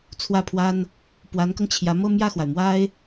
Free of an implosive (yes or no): yes